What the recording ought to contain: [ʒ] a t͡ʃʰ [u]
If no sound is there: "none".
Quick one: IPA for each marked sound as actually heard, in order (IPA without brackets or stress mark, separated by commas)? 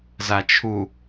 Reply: z, u